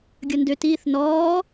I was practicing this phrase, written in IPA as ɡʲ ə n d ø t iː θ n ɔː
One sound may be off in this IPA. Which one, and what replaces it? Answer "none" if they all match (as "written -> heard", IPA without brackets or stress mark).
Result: none